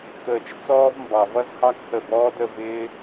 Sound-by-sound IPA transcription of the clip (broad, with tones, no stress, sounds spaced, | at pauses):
t̪ əː˨ t͡ʃ t͡s ɔː˦ v m b ɑ˨ v ʌ˦ z h ɑ˦ k h ə˦˨ b ɔː˦ d ə˧ v ɪː˧